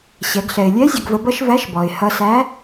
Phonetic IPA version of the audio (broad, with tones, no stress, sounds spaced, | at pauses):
ɕ ɛ˩˧ ɡ ɬ ɛ˩ ɪ̯ lʲ ɛ˧˥ zʲ ʌ˧ ɡ v ə˧ b ʌ˥ ʃ v æ˧˥ ʃ b ɔ˩ ɪ̯ h ʌ˧ s æ˧˥